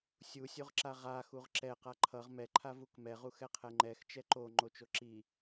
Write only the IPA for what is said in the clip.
sʲ u sʲ o ʁ ǁ a ʁ a x u ʁ ǁ ɛ q a ǃʰ ʌ ʁ m ɛ ǃʰ a v u k m ɛ ʁ u x ɛ qʰ ɛ ŋ͡ǃ ɛ x t͡ʃ ɛ ǃ o ŋ͡ǃ o t͡ʃ o ǁ i

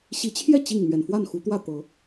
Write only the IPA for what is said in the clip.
ɕ i˨˦ t͡ɕʰ j ɛ˥˨ t͡ɕ i˥˨ ŋ n̪ ɥ ɛ˨˩ n f w a˥˨ n x u˨˦ t̪ w ä˥˨ t̪ ɤ˨˦

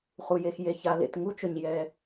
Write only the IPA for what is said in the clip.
χ u˩ j e˩ x j e˩ ç a˩ l ḛ˩ t ŋ u˥ t͡ʃ ʊ˩ ɲ j ɛ˩

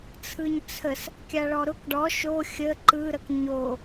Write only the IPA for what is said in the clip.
t͡sʰ ɯ ɲ t͡sʰ ə s | kʲ a ɭ ɔ ɾ ʊ k ɖ ɔ ʃ o xʲ ə ǃ ɯ ɾ ə k ɲ o

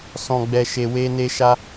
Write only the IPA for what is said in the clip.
s ɔ̃˧ ɡ͡b ɛ˧ ʃ e˧ w e˦ n e˦ ʃ a˦

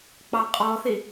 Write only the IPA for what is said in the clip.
k͡p ɑ qʼ ɔ θ i

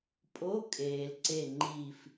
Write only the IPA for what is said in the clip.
pʼ o˧˥˧ kʼ eː˨ l ǀ e˥˧ ŋ͡ǃ iː˥˧ f

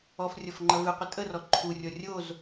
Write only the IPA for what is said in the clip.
ɔ f rʲ ɔ f ŋ͡ǃ ɐ v ɨ qʷ ə tʼ ə r ɔ ǃʰ u rʲ ɔ rʲ o z

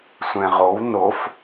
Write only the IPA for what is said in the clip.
sʷ ɛ̃ ʁ o w n o f

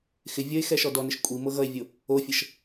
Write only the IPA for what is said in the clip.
x ɪ vʲ ʌ e̯ x ɛ ʃ ɔ d ɔ n ɪ ʃ kʷʼ i m ɤ ɣ ʌ e̯ vʲ o | o fʲ ɤ ʃ

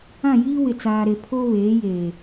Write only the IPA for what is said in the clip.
ã˦˨ j iː˦ w ɪ˨ t͡s aː˨ ɾ e˨ pʰ o˦ β eː˨˦ j eː˨

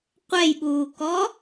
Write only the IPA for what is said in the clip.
qʷ ɛ j ɓ uː k ɔ

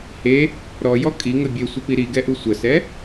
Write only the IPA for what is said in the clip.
h e | ɾ ɔ j ɔ kʼ i ŋ ə bʲ e sʷ ə p i ɾ i ɡ ɛ ʔ u sʷ ə s ɛ

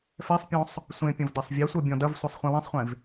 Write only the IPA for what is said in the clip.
f ɛ sˤ pʲ ɔ̃ sˤ | sʷ ẽ pʲ ɐ̃ v d ɐ sˤ vʲ e sʷ ɤ bʲ ɔ̃ d ɐ v sʷ a sˤ χʷ ẽ w ɛ̃ sˤ χʷ ẽ v

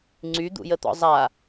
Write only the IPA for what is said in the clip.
ŋ͡ǀ y d̪ ṵ j ə t̪ ɔ̰ zˤ a

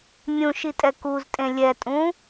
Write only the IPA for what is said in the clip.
mʲ ũ ʃ i tʼ ɛ k u z tʼ ẽ lʲ ɛ tʼ ũ

